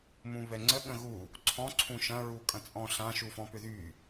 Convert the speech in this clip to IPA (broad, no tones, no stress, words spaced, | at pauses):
mũβɛŋ͡ǀə ɠə̃ɣu | ǀʰɔ̃ ǀʰũʃɐ̃ ɹukʼɐ̃t͡sʼɔ̃ɬã ʃufɔ̃pʏðy